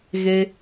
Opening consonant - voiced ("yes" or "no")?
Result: yes